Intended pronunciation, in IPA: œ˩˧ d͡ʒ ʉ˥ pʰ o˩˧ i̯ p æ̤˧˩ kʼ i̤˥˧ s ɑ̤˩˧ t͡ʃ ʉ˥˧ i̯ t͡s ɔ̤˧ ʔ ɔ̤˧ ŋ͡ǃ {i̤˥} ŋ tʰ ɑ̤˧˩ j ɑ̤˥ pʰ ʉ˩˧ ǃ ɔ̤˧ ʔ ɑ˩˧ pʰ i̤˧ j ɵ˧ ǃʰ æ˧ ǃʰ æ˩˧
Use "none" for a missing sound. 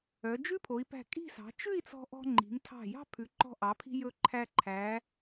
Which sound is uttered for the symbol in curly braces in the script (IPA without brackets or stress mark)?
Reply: i̤˩˧